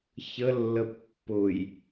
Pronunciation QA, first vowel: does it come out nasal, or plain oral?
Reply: oral